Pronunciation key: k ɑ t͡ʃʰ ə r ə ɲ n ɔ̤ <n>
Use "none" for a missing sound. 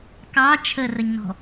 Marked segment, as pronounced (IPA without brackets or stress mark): none